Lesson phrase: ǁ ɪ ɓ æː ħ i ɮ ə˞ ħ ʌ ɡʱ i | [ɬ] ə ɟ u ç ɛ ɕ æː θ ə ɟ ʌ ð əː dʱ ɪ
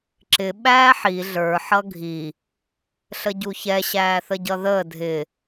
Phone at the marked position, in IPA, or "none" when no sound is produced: ɬ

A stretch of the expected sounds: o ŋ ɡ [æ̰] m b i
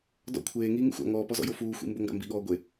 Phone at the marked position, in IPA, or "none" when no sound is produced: a̰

